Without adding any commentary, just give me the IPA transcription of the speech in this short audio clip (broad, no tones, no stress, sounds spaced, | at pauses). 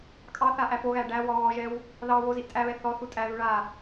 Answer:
kʼ ɑ θ a ʔ æ p o ɣ æ ɖ æ w ɔ ɣ ɔ ʒ ɛ w | ð ɑ w o z i ʔ tʼ æ β ɛ θ ɔ θ u tʼ æ ð u ɭ a